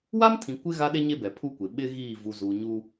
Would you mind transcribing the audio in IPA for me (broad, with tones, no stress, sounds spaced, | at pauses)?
w a˦ m tʰ ĩ˨ kʷ ɪ˦ ɣ a˦ ɗ e˦ ɲ e˦ b ɛ˨ pʰ u˦ kʷ e˨ ɓ ɪ˦ ɣ iː˦˨ v u˨ z u˨ ɲ u˦